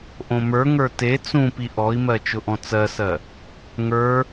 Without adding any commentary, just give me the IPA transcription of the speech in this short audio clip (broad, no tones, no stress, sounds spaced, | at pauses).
ʔ õ m ə˞ ŋ ə˞ t e t͡s ũ p i ʔ ɔ i̯ m ɜ t͡ʃ ʊ ʔ ɔ̃ t͡s ɜ s ɜ | ŋ ə˞